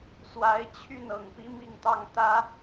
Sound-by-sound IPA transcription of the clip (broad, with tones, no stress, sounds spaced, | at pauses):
s w a˧˥ ɪ̯ t͡ɕʰ y˥˩ n ɤ˨˩ ŋ p i˧˥ m i˥˧ ŋ t̪ ɑ˥˩ ŋ t̪ ä˥